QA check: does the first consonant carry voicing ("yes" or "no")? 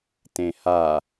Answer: no